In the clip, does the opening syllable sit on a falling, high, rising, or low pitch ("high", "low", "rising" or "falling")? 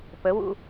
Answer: rising